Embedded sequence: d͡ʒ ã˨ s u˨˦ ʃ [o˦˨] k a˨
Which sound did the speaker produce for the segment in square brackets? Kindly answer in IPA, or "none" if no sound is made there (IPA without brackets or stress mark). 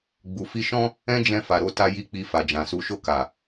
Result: o˦˨